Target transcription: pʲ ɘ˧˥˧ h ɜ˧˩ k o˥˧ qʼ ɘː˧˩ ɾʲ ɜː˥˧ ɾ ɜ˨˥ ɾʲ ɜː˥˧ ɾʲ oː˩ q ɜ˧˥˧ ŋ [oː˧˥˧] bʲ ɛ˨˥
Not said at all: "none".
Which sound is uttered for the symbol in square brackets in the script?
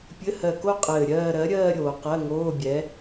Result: oː˧˥˧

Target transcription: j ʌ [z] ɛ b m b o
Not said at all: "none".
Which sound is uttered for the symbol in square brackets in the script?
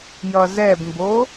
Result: z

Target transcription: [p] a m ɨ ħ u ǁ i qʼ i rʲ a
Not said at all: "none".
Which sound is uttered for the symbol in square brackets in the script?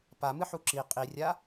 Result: p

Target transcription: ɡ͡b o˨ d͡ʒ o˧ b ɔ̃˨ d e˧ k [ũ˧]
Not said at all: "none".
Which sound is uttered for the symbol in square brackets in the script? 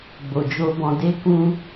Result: ũ˧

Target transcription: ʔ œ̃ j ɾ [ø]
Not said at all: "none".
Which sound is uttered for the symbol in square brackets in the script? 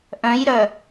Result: œ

